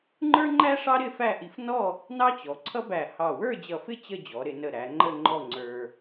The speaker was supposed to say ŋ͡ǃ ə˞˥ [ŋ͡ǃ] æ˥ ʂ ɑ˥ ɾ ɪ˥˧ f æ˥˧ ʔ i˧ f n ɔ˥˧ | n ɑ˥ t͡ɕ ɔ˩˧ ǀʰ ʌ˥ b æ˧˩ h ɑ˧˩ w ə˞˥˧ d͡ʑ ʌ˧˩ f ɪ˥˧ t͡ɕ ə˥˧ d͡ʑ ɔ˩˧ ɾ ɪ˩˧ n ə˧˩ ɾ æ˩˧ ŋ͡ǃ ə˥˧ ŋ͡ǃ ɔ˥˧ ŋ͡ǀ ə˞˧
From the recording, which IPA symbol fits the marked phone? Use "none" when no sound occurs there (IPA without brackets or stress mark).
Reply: ŋ͡ǃ